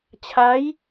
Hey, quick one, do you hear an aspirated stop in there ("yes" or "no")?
yes